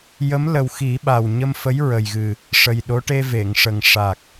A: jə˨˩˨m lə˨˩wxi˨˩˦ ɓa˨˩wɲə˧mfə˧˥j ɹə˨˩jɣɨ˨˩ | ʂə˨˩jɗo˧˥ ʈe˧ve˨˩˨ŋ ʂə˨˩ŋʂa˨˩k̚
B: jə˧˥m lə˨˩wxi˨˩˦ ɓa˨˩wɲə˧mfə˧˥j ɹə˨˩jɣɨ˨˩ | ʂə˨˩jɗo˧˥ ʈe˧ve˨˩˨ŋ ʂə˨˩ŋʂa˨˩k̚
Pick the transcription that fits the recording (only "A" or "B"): B